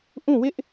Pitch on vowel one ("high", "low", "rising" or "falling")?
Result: falling